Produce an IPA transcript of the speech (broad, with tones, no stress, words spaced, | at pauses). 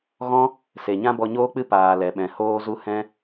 ɣɔ̃˦ | se˨ ɲã˦bɔ˧ɲoː˦k͡pɨ˦ paː˨ lɛ˧ɓɛ̃˧ hoː˦zu˦ hɛ̃˦